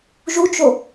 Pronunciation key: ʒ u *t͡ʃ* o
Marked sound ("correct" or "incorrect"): correct